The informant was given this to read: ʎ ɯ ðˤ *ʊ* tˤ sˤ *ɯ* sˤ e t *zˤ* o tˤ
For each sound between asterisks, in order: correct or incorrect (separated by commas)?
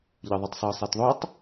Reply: incorrect, incorrect, incorrect